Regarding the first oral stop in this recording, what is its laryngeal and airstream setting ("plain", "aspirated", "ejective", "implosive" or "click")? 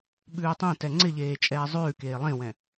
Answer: implosive